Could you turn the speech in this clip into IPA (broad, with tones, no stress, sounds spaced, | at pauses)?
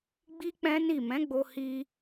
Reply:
ɡ͡b i˦ k͡p ɛ̃˦ n i˦˨ m ɛ̃˨˦ ɡ͡b o˧ h i˧